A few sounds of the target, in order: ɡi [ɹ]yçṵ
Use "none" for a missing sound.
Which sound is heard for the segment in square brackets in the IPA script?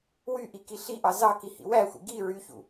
ɹ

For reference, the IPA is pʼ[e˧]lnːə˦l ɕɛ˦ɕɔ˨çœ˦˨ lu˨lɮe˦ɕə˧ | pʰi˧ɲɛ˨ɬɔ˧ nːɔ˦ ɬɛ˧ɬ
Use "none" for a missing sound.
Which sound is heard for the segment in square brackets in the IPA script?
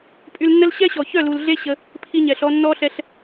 y˧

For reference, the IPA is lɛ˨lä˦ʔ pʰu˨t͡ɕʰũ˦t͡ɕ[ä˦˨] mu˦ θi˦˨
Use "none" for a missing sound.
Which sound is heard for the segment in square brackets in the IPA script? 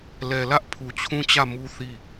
ä˦˨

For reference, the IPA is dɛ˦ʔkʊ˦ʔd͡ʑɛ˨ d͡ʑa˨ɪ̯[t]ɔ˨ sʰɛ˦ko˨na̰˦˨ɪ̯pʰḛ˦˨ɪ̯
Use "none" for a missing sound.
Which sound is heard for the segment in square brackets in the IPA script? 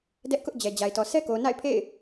t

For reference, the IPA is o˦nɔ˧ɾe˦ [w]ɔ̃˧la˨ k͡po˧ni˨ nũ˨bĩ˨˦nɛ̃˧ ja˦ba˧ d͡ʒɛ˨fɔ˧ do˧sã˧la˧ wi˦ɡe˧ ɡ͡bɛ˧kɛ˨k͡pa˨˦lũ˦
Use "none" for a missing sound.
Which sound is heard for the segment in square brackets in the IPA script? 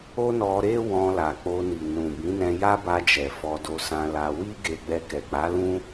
w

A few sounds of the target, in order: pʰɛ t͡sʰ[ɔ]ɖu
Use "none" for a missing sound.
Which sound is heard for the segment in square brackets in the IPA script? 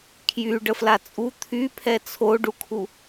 o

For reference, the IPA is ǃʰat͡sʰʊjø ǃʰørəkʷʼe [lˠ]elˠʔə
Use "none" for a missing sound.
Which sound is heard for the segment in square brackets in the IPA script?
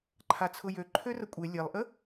lʲ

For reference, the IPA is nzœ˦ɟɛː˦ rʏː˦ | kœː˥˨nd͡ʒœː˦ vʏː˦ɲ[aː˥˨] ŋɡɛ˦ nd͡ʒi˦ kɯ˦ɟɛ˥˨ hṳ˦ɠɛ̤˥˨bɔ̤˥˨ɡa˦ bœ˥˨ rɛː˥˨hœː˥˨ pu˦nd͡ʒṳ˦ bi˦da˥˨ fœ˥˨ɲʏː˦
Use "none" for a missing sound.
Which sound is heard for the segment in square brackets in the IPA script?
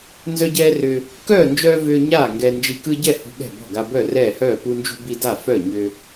aː˥˨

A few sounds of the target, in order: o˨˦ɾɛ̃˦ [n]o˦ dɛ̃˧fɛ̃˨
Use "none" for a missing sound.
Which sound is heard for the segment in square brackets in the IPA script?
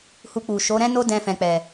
n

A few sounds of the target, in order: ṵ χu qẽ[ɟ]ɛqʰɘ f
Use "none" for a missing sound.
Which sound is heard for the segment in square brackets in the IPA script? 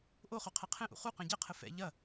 ɟ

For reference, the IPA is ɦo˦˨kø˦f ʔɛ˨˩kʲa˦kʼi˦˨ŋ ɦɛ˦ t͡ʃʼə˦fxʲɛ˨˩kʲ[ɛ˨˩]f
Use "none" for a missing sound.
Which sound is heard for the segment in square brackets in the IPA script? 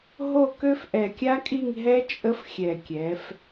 ɛ˩˧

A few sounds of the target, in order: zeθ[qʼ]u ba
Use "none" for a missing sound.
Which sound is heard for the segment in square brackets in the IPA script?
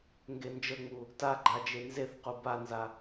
q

